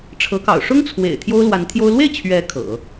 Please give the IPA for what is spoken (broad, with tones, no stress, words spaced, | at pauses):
ʈ͡ʂʰɤ˧˥kɑ̰˨˩ʊ̯ ʂʊ˥ŋt͡sʰwḛ˨˩ɪ̯ t̪ʰjo˥ʊ̯lwa˧˥nt̪ʰjo˥ʊ̯ lwe˥˩ɪ̯ t͡ɕʰɥɛ˧˥ kʰɤ̰˨˩˦